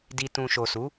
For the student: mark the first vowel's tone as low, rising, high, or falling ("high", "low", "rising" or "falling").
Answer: low